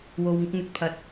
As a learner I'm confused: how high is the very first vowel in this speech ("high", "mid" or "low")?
mid